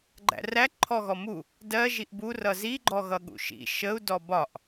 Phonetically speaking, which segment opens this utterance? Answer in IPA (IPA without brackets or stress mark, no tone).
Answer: ɡ͡ǃ